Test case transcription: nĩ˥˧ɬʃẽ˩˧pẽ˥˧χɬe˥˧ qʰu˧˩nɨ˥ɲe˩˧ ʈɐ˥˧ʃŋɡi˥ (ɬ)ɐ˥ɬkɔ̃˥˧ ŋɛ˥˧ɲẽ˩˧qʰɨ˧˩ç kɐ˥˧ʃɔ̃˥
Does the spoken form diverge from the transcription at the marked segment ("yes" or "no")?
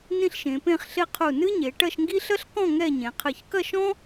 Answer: no